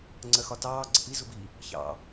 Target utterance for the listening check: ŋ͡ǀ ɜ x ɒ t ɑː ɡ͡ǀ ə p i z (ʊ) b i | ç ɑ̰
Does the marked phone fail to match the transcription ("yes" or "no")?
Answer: no